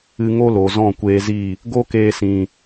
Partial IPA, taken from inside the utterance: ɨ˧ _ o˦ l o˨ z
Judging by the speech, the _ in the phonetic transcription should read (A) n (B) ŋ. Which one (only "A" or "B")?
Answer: B